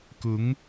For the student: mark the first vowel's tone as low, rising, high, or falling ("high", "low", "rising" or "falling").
rising